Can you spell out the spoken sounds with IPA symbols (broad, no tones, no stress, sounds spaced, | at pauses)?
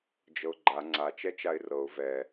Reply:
d͡ʒ ɤ ʊ̯ ɡ͡ǃ a ŋ͡ǀ a t͡ʃ ɛ t͡ʃ a ɪ̯ r ɤ ʊ̯ v ɛ